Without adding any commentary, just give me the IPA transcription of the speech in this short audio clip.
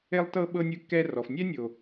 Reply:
e˦ lˠ t ɤ˦ ɓ ɤ˦ nʲ ɯ˦ kː ɛ˦ r ɔ˨ f nʲ ɛ˦ nʲ o˨

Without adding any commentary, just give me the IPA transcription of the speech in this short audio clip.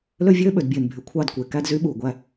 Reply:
l ø˦ vʲ øː˦ ɓ ø˨ d bʲ eː˨ n bʱ y˨ kʷʰ ɑ˦˨ d kʷ e˨ k æ˦ d z y˦ ɓ uː˨ ɡʷ æ˦

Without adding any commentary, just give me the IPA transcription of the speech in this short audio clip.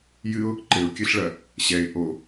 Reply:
j ɨ ʊ̯ | ǃ ɘ ʊ̯ kʲ ɨ ɬ ɭ ɐ | ɕ ɛ ɪ̯ ʔ o

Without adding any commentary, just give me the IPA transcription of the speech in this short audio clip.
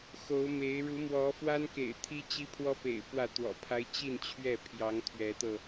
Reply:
x o˨˦ ʊ̯ m e˨˦ ɪ̯ ɻ u˨˦ m w ɔ˨˦ f w a˦ n k ḛ˨˩ ɪ̯ t̪ʰ i˦ t͡ɕ i˦ pʰ w ɔ˦ p ḛ˨˩ ɪ̯ p w ä˥˨ t̪ w ɔ̰˨˩ pʰ a˦ ɪ̯ t͡ɕ i˥˨ n t͡ɕʰ ɥ ɛ˥˨ pʰ j ɑ˨˦ ŋ t̪ʰ ɥ ɛ˨˦ t̪ ɤ˧

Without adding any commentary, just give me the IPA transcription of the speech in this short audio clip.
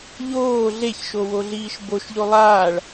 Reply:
ʎ oː ɮ e ç ʃ o w o ɮ iː ʃ b o ʃ ʎ o lˠ aː ɭ

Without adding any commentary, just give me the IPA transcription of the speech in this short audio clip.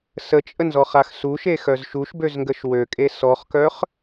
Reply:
s ə t͡ʃʼ ə n z ɔ χ a x s u ʃ e x œ z ʃ u ʃ b ø z ŋ ɡ ə ʃ w ø kʼ e s ɔ χ k œ χ

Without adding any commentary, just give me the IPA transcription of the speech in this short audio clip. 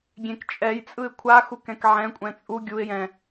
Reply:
ɡʲ ẽ k t͡ʃʼ ɛ j t͡sʼ ɯ ɪ̯ kʷʰ a x u k ɛ̃ k ʕ ɛ̃ kʷʼ ɛ̃ t͡sʼ u ɡʲ u ɪ̯ j ɛ̃

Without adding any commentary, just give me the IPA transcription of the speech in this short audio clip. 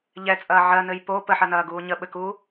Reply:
ʎ ɛ t͡sʼ ɐː ʕ ɜ n ɘ j p o p ə ħ ɐ n ɐː ɡ uː ɲ ə ɓ ɘ k uː

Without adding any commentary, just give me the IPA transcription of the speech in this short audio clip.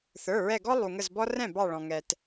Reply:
θ ə˞˩˧˩ ɹ ɛ˧˩ ɡ ɔ˦ lˠ u˩ ŋ ə˧˩ z b ɔ˦ r ɛ̃˥˩ b ɑ˧˩ ɭ ɔ̃˩ ŋ ɛ˩ t

